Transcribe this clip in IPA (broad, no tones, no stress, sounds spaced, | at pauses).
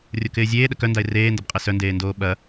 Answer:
rʲ o k ɪː zʲ eː ɗ ə k œ n d a ɪ̯ r eː n d ɐ b qʼ e s œ n d eː n d oː ɓ ɐ